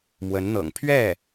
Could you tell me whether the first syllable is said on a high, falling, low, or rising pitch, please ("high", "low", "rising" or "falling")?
rising